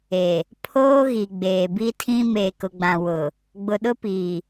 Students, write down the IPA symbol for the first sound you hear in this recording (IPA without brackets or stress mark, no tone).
e